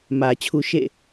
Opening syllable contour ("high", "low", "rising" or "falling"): low